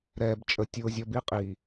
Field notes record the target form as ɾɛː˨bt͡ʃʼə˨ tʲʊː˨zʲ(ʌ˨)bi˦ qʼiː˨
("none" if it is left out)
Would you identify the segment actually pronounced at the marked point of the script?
ʌ˨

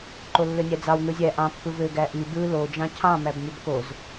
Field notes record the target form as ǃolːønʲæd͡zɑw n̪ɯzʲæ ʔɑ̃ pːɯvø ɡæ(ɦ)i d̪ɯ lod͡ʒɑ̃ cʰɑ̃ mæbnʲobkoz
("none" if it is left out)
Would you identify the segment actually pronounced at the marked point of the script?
ʔ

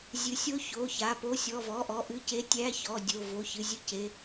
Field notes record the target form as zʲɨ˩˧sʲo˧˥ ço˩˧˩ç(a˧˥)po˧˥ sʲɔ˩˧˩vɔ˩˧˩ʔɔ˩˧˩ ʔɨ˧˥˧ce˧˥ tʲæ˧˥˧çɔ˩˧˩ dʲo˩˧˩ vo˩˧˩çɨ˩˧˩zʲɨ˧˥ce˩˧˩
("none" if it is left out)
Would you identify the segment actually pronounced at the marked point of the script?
a˩˧˩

